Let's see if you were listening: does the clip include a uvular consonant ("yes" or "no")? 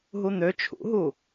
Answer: no